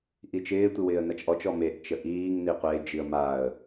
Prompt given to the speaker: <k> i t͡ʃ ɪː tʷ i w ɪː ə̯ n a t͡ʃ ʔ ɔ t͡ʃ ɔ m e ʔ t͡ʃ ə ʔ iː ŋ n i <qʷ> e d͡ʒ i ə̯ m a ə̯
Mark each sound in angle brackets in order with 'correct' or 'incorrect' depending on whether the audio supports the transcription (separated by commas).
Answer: incorrect, correct